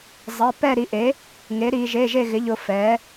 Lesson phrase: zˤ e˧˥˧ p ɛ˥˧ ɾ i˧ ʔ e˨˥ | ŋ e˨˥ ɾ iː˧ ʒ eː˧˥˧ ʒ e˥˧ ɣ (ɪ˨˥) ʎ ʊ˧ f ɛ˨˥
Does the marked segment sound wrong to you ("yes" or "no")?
no